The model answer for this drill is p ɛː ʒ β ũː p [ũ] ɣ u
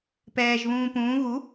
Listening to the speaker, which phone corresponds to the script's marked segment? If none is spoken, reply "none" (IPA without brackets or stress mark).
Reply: ũː